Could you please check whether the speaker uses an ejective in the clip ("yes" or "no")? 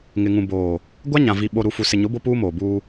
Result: no